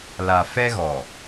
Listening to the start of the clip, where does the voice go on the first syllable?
low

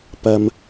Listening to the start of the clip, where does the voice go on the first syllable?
low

